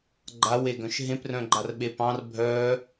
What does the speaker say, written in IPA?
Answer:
ɡ͡ǃ a w e ɡ œ̃ ʃ ɦ ẽ p r œ̃ ɡ͡ǃ a r ɓ e p ɑ̃ r bʱ œ

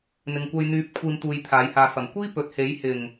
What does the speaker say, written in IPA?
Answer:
n̪ ɪ˨ ŋ kʷ ɐ˧ j n̪ yː˨˥ p̚ kʷʰ iː˨ m t̪ uː˨˧ j t̪ʰ aː˨˥ j h aː˨˧ f ɐ˨˩ m kʷ iː˥ p ɵ˨ t̚ h e˨˥ j h ɪ˨˩ ŋ

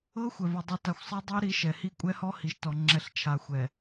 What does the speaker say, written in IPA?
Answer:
ɤ˦ xʷ ɛ˨ v o˨ dˤ i˨ t a˨ xʷ sˤ ɤ˦ dˤ i˦ ɾ i˨˦ ʃ ɛ˨ h i˦ kʷʼ ɛ˦ h ɔ˦ h i˨ ʃ t ɔ˨ ŋ͡ǁ ɛ˨ ɬ t͡ʃʰ a˨ xʷ ɛ˨

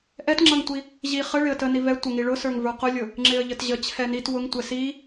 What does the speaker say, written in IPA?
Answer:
ʔ ɛ t ŋ͡ǁ ʌ ŋ tʷ i | ʑ i χ ə ɭ ɪ ə̯ t ə n i v ɛ tʷ ə ŋ i ɭ ʊ s ə˞ ŋ v ə˞ q ʊ lʲ ʊ | ŋ͡ǁ ɪ ə̯ ʎ ə t ʑ ə t͡ɕʰ ɛ n i t w ʊ ŋ tʷ ɛ s i

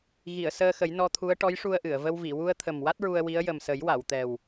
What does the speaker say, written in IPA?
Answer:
ɣ i˨˩˨ ə̯ s əː˧ x ə˨˩˦ j n ɔ˧ t̪ʰ u˧˥ ə̯ ʈ ɔ˧˥ j ʂ u˧ ə̯ ʔ ɨ˨˩˨ ə̯ v ə˧ w v i˨˩˨ w u˧ ə̯ t̪ʰ ə˨˩ m w a˦˥ t̚ ɹ u˧ ə̯ w i˧˥ ə̯ j ə˨˩ m s ə˨˩˦ j w a˨˩˨ w t̪ ɛ˨˩ w

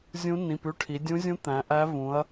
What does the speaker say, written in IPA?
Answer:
zʲ ũ˧˥ n ĩ˩˧˩ p ʉ˦˨ ʈʰ i˩˧ dʲ ũ˧˥ zʲ ũ˧˥ t̪ æ̃˩˧ ʔ æ˧˥ v ũ˩˧ ɐ̯

